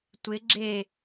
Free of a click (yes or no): no